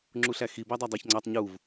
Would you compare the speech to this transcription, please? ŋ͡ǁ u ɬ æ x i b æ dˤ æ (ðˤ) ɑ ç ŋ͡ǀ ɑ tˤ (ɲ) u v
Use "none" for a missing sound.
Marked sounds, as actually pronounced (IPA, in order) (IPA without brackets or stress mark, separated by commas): dˤ, ɲ